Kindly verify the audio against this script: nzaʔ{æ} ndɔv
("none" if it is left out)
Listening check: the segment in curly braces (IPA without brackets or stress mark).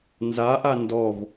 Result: a